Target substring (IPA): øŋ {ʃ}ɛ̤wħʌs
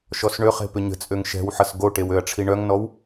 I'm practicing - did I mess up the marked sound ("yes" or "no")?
no